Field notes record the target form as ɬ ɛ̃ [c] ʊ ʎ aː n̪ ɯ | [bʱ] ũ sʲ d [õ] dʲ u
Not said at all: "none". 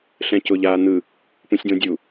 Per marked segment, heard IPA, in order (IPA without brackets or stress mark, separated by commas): c, p, õ